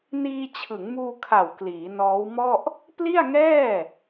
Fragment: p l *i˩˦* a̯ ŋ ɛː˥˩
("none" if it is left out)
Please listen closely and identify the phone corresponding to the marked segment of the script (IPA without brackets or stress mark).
i˥˩